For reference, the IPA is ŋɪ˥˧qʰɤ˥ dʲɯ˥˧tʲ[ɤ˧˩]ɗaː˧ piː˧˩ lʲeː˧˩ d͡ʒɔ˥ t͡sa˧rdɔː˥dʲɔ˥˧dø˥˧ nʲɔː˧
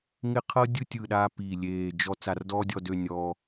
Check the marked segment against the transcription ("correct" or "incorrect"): incorrect